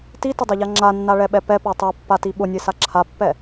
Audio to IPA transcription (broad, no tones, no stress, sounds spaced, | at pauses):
t i t ʊ dˤ ɛ ʎ a ŋ͡ǁ a nː a ɭ ɛ ɓ ɛ p ɛ p a tˤ ɛ pː a t i ɓ ʊ nʲ e s a ǁʰ a pː ɛ